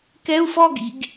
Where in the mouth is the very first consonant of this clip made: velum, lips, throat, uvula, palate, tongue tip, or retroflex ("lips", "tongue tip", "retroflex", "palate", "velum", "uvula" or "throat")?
velum